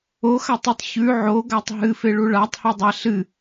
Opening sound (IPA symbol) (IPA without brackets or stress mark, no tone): o